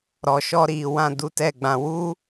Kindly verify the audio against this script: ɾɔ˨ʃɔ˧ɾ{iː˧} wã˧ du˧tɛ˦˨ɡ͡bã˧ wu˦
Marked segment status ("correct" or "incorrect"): incorrect